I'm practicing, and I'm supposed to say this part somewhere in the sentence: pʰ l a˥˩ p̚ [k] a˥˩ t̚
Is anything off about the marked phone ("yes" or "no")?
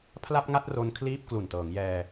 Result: yes